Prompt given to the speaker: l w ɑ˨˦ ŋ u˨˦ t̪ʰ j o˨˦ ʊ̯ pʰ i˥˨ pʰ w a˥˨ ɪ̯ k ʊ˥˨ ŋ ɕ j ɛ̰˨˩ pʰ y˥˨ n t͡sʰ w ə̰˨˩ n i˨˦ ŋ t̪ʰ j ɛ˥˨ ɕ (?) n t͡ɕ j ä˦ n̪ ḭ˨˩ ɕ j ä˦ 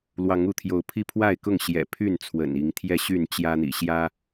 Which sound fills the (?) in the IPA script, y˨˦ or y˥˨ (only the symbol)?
y˥˨